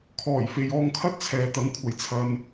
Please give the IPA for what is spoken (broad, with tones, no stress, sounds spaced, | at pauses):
kʰ ɔː˨˩ j f e˨ j ɔː˧ ŋ kʰ ɐ˥ t̚ t͡sʰ ɛː˨ t̪ ɐ˨˧ ŋ kʷʰ ɐ˨˩ j t͡sʰ ɐ˨ n